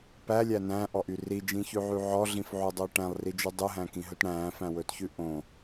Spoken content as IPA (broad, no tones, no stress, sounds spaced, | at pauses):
p æ lʲ æ n æ̃ː ʔ ɔ ʔ y r i d͡ʒ ĩ ç ʉ ʕ y ʕ ɔ ɮ ĩ f ʕ u dˤ o ʈ æ̃ lˠ r i d͡ʒ ʉ dˤ ʉ ɦ æ̃ k ĩ ɦ ɵ t ɽ æ̃ː f æ̃ w ɵː t ç ʉ ʔ õ